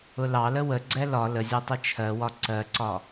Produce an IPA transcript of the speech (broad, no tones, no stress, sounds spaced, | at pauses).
ʊ l ɑ l ə w ə ɡ͡ǀ ɛ l ɒ l ə zʲ ɜ tˤ ə t͡ʃʰ ɜ w ɒ ǀ ɜ ǀ ɒ